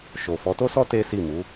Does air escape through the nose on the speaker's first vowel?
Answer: no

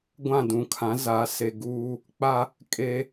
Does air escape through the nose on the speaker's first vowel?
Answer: yes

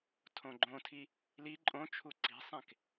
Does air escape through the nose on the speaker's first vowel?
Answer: yes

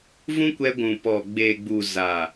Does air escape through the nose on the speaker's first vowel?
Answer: yes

